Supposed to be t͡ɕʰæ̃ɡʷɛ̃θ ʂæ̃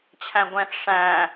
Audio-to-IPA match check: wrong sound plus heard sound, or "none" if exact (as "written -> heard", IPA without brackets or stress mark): none